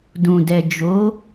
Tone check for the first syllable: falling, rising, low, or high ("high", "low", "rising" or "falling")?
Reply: low